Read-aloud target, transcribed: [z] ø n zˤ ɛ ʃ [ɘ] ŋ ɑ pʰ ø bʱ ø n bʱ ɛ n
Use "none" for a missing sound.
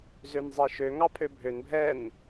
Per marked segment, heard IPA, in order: z, ø

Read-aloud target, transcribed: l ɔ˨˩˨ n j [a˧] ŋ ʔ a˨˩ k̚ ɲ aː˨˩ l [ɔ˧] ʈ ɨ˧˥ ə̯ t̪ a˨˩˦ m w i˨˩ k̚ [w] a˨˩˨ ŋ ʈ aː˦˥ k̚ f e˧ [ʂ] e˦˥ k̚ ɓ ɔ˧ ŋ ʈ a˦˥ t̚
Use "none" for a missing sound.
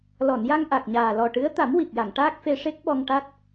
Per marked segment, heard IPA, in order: a˧, ɔ˨˩, j, ʂ

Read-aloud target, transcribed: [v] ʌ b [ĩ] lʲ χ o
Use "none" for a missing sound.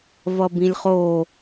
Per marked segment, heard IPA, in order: v, ĩ

